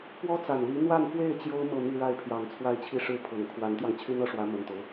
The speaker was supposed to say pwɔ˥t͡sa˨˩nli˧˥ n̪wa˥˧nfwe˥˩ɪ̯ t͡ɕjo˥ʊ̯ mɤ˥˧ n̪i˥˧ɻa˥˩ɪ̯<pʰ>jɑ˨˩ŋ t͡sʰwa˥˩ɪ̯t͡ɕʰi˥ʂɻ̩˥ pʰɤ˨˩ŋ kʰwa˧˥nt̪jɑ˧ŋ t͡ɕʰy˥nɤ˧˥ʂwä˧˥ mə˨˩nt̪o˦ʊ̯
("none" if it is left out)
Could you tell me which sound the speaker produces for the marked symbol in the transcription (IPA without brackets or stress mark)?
pʰ